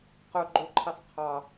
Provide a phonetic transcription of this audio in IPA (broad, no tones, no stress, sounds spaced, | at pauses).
q ɵ ɡ͡ǃ ɵ ǃʰ e sˤ qʰ ɑ